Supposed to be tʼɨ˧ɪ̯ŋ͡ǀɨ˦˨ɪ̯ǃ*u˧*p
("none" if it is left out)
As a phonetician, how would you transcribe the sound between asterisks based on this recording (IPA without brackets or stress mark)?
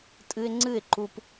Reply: u˧